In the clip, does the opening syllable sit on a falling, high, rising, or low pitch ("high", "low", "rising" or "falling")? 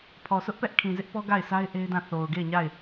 low